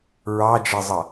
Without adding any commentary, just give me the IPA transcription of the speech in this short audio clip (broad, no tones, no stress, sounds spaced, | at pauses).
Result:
ɹ ɑ d͡ʒ ɛ zˤ ʌ